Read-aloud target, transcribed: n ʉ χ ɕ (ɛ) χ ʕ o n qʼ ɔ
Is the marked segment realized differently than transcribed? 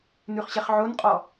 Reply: no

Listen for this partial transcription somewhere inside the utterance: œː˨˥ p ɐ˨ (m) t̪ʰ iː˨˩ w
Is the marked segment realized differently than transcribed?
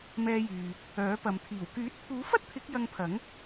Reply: no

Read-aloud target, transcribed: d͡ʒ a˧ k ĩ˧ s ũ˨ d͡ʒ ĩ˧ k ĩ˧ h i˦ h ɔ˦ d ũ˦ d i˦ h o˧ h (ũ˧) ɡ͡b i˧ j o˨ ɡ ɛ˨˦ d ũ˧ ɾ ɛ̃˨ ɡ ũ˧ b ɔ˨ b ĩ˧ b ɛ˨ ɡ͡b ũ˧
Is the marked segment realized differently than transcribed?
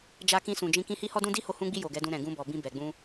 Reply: no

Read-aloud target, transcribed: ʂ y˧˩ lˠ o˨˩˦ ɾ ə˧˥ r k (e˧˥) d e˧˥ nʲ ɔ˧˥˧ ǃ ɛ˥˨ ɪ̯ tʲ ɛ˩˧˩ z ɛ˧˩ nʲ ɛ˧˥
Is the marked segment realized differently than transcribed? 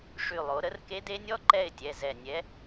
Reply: no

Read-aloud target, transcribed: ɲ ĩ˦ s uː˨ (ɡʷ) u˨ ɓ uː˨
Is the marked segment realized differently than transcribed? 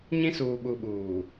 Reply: yes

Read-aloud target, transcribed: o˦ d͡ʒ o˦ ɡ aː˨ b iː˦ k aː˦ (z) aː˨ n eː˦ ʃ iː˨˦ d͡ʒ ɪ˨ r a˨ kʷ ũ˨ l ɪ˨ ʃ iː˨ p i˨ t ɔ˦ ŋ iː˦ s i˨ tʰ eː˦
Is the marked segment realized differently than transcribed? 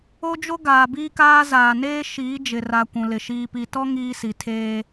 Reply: no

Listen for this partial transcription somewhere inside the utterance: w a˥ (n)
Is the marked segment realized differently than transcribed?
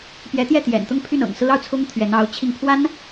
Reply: no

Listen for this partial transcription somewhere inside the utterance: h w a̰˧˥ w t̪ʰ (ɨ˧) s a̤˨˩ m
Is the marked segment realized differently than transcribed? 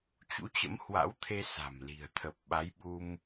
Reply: yes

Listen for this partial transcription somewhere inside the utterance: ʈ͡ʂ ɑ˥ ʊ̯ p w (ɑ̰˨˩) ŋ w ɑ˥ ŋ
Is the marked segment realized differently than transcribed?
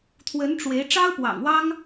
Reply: no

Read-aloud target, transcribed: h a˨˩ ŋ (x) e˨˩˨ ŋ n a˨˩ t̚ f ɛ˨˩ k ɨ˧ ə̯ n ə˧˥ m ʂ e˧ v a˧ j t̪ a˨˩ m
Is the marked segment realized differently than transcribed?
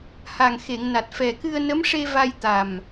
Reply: no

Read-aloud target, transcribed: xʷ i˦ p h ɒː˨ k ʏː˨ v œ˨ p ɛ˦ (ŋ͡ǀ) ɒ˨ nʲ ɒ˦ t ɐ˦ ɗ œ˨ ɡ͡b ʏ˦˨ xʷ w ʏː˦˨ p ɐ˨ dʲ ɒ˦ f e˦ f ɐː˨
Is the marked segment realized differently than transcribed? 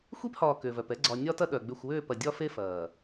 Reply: yes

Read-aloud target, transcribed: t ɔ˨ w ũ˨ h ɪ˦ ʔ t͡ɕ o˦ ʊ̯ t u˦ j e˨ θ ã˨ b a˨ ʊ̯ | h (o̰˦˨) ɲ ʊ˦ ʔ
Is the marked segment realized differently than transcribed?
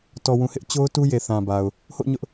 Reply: no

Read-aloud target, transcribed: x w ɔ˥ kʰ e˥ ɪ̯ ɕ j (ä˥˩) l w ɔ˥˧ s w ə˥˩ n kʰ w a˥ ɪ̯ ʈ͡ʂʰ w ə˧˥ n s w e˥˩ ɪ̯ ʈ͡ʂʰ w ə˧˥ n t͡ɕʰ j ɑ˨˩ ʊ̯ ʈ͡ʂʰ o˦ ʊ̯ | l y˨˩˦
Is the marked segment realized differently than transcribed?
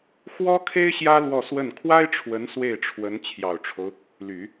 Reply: yes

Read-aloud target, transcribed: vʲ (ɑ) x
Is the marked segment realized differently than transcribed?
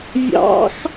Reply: yes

